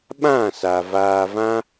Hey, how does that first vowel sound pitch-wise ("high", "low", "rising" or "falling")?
falling